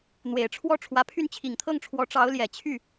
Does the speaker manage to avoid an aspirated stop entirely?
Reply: no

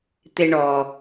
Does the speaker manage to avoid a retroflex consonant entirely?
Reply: no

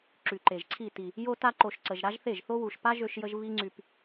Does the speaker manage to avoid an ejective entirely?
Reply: yes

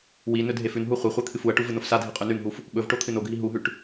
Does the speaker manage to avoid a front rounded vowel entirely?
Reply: yes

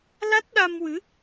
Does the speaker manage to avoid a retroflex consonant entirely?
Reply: yes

